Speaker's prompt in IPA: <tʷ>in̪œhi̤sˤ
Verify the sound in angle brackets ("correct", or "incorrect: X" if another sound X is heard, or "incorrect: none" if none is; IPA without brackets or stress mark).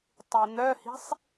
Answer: incorrect: tˤ